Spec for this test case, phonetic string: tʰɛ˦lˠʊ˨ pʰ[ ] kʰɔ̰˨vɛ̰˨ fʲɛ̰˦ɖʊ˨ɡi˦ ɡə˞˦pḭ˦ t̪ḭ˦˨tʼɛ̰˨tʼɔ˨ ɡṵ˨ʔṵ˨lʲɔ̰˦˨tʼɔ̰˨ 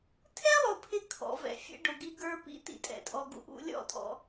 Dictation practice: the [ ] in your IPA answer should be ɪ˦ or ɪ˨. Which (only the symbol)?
ɪ˦